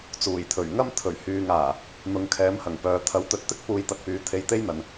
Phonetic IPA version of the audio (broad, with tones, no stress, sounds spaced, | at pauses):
t͡s uː˨˩ j t̪ʰ ɵ˨˩ ɥ ŋ ɐ˥ m t̪ʰ ɵ˨˩ ɥ h yː˨ ŋ aː˨˩ | n̪ ʊ˧ ŋ kʰ ɛː˨˥ m h ɐ˨˩ ŋ p œː˨˧ t̪ʰ ɐ˨˧ w t̪ ɵ˨˥ t̚ t̪ ɪ˥ k̚ p uː˧ j t̪ ɐ˧ t̚ p yː˨˥ t̪ʰ e˧ j t̪ e˥ j n̪ ɐ˨ n